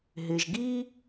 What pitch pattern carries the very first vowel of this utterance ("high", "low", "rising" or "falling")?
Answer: low